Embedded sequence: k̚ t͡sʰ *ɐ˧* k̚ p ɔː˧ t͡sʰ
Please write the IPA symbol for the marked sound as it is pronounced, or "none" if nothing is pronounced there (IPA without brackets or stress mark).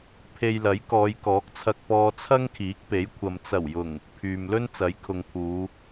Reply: ɐ˧